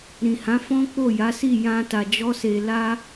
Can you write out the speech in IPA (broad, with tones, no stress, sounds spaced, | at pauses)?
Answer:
ɾ ĩ˨ h ã˨˦ f ɔ̃˦ k͡p o˦˨ j a˨˦ s i˦˨ j ã˧ t a˨ d͡ʒ ɔ˧ s e˨ l a˧